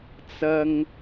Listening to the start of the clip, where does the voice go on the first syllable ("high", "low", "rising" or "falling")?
high